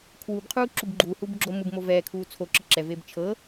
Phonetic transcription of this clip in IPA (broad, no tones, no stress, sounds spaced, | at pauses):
kʰ w u b qʰ uː ǁ u b ɡ͡ǃ uː h uː b ɡ͡ǁ o m ɯ b m o v ɛː kʰ uː t͡sʰ o ǁ ɯ ǁ ɛ v eː b t͡ʃʰ ɤ